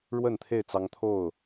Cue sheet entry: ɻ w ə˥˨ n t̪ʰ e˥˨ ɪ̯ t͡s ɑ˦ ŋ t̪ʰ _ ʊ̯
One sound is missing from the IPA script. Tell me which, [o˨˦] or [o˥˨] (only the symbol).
o˥˨